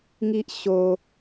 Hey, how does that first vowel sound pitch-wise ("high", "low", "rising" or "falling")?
high